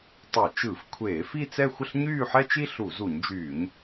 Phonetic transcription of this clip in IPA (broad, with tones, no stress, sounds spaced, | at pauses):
tˤ ɛ˧˩˧ t͡ʃ ɯ˧˩˧ f kʷʰ eː˧˩˧ f i˥˧ t͡s ɛ˥˧ xʷ ə˥˧ ɬ ɲ yː˥˧ ħ ɛ˥ t͡ʃ i˥ ɬ u˧˩˧ z u˧˩˧ ɲ d͡ʒ yː˧˩˧ ɲ